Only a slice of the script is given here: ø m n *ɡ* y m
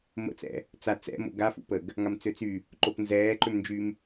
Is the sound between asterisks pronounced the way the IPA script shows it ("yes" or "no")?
no